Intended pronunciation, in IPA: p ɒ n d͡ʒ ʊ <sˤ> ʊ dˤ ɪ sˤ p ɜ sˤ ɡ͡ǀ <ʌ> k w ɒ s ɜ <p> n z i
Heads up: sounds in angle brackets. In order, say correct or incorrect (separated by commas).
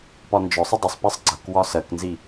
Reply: correct, correct, incorrect